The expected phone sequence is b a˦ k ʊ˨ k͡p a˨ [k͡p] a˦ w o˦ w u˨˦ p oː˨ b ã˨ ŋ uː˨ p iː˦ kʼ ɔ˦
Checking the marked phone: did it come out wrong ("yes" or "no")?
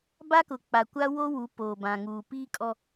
yes